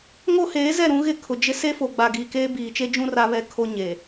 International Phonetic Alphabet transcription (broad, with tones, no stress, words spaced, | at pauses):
ŋo˦ heː˨˦zɛ˦˨ ɾũ˦ɣɪ˦˨kʰʊ˨ d͡ʒɪ˦ se˦fo˨ ɡ͡ba˨ɡiː˨keː˦ biː˨t͡ʃe˦d͡ʒũ˦ ra˦ βɛ˦kʰo˦ ɲeː˨